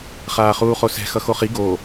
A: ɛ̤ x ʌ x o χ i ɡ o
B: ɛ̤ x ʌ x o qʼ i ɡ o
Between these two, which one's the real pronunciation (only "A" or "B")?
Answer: A